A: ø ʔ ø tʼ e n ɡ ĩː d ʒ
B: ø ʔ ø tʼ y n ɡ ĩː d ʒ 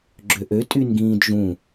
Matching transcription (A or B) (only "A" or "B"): B